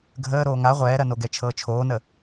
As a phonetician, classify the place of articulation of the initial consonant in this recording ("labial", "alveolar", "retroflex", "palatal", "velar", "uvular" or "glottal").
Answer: velar